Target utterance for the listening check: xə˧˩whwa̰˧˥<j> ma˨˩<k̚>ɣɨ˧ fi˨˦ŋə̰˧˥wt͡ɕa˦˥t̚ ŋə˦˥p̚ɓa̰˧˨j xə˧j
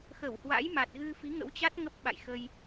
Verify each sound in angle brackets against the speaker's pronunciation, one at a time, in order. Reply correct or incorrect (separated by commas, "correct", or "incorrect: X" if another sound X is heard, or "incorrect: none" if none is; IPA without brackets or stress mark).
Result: correct, incorrect: t̚